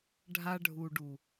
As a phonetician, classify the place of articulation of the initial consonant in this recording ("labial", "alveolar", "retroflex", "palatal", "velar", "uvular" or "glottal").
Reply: retroflex